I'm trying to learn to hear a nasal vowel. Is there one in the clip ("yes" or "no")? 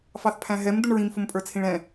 yes